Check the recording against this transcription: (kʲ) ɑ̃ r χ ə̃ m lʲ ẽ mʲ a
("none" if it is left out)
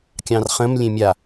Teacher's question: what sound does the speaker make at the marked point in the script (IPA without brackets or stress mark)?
kʲ